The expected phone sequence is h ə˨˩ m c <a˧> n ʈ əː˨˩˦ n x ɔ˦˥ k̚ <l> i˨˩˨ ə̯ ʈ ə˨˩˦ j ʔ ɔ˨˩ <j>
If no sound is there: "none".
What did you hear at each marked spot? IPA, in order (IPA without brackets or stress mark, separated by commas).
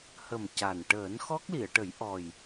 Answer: a˨˩, l, j